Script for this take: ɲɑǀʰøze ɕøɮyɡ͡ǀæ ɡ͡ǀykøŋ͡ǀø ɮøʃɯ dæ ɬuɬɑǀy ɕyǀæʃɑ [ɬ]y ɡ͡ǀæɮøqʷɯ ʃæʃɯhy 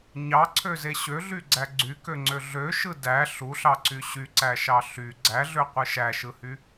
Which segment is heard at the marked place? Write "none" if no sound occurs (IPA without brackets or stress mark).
ɬ